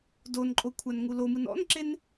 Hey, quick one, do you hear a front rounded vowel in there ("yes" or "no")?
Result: no